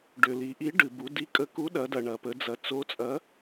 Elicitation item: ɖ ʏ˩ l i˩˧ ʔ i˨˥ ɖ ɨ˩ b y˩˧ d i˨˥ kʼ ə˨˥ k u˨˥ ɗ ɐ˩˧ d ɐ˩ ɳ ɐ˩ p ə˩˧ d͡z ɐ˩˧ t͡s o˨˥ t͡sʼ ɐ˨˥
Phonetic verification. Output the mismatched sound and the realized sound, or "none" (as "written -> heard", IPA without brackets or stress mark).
y˩˧ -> u˩˧